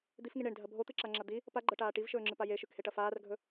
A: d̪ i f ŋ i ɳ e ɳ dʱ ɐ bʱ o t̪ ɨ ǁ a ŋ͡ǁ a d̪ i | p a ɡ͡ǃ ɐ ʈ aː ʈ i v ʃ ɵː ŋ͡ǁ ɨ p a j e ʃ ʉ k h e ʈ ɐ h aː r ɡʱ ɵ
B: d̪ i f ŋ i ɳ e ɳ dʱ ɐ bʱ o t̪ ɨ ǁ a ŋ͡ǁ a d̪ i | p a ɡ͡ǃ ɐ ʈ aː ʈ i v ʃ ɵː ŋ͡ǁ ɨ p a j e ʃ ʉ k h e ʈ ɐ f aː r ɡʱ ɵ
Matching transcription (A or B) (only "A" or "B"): B